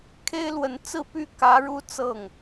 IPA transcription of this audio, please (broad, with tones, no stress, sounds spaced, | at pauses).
kʰ e˥ ɪ̯ l w ə˧˥ n t͡s ɹ̩˥˩ p y˥ k ä˧˥ ɻ u˥˧ t͡s ɤ˥˩ ŋ